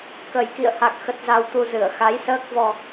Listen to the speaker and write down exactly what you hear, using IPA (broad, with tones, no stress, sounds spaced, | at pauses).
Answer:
k ə˨˩ j k ḭ˧˨ ə̯ h a˨˩ k̚ x ə˨˩ t̚ z a˨˩ w t̪ u˨˩ z ɨ˧˩ ə̯ x a˨˦ j s əː˦˥ k̚ v ɔ˧